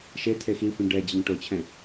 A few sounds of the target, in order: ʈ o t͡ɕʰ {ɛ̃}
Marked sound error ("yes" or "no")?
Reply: no